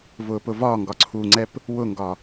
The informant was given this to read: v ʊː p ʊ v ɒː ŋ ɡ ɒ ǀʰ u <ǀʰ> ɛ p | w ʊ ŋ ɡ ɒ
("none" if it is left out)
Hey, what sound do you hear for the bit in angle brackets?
ŋ͡ǀ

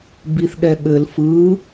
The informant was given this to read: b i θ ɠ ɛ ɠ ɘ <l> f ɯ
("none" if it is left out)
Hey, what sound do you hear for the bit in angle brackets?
l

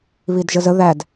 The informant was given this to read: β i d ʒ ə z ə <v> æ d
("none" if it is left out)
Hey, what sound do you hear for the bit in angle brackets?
ð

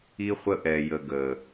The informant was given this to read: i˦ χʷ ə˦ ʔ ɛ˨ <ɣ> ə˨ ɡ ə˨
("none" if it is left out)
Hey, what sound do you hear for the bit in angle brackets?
j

